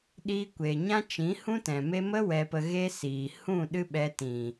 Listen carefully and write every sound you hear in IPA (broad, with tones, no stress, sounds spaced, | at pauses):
ɗ iː˧ kʷ eː˨ ɲ ã˦ t͡ʃ ĩ˨˦ h ũ˦ t ɛ̃˨ m e˧ m ə˦ w ɛ˧ p ə˧ ɣ e˦ s iː˨ h ũ˦˨ ɗ ɨ˦ ɓ ɛ˧ t ĩ˨